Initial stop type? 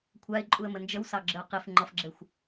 aspirated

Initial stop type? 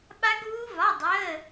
implosive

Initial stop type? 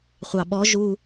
implosive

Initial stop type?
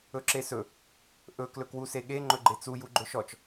click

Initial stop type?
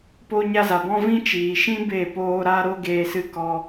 plain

